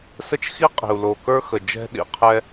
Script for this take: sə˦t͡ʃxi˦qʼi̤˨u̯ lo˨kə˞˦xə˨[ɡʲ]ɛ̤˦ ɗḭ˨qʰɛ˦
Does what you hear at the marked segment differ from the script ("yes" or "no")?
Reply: yes